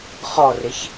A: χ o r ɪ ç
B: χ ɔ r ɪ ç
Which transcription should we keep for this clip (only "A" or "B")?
B